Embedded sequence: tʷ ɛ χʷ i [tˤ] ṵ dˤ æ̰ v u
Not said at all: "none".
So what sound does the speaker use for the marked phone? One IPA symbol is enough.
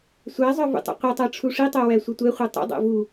tˤ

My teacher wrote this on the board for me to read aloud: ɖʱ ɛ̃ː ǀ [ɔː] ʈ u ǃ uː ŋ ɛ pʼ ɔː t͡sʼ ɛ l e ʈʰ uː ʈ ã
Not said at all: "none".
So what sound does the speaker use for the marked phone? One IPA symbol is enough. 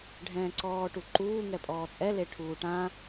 ɔː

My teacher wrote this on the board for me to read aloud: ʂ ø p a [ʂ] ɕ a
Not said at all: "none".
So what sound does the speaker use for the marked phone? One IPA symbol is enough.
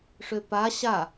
none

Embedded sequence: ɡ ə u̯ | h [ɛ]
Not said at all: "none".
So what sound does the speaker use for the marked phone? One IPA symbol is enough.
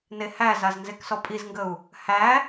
æ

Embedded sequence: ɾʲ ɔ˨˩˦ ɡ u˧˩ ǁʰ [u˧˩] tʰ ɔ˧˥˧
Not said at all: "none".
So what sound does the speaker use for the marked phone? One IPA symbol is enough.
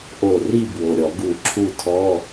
u˥˧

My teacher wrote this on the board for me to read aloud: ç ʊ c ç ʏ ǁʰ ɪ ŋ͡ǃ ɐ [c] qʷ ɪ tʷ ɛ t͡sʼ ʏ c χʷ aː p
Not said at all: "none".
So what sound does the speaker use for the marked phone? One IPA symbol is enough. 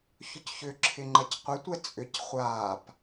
c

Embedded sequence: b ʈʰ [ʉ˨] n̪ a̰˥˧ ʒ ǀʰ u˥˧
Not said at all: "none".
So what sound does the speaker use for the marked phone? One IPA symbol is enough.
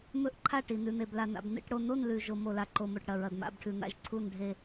ʉ˨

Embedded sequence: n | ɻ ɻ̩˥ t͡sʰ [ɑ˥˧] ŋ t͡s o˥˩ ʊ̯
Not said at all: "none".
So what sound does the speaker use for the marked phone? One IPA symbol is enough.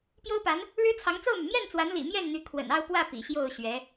ɑ˧˥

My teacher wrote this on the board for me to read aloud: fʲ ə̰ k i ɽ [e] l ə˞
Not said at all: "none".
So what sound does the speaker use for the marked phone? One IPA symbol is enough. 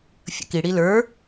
i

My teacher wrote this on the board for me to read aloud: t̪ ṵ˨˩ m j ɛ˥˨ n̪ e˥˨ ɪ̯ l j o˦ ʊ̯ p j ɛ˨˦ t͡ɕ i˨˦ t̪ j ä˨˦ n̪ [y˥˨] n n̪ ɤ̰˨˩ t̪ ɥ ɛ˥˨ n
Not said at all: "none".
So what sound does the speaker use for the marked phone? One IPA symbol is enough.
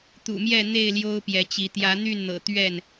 y˥˨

